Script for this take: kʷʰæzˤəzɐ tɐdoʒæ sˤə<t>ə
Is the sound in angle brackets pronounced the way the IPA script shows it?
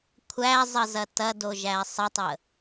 no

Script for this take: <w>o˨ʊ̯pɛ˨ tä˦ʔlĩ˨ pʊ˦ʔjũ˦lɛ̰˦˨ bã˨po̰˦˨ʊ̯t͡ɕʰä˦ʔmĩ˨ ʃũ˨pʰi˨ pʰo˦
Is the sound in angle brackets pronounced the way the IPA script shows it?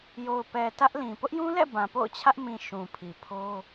no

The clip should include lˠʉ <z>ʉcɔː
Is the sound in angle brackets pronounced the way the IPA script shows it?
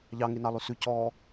no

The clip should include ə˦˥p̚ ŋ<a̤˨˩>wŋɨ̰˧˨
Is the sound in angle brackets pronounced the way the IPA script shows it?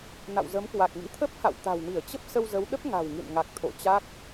yes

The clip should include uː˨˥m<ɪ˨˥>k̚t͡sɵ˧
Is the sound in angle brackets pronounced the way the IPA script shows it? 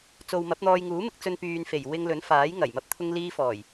no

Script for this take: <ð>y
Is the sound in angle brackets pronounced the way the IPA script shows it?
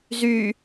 no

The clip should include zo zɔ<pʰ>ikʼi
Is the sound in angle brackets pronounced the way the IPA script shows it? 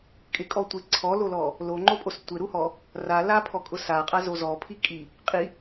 yes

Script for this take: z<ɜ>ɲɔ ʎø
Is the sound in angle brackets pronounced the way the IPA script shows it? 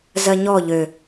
yes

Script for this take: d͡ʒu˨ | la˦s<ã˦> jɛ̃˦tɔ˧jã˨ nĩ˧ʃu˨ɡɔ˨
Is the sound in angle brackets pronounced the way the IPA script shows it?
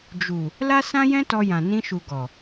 yes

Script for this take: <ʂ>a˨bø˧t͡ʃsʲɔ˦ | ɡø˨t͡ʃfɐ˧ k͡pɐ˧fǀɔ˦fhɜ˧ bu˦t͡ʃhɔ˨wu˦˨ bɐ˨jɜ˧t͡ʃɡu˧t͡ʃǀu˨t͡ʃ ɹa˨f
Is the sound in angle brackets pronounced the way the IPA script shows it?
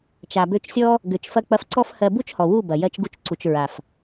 no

